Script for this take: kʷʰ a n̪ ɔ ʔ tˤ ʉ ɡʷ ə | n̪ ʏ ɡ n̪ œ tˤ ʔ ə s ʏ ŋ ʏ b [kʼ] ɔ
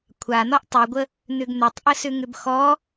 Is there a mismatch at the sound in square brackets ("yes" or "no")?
yes